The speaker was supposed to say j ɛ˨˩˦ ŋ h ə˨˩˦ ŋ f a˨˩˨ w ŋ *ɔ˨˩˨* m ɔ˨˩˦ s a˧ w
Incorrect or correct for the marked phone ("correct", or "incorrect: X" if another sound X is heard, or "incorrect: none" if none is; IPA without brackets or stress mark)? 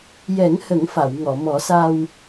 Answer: correct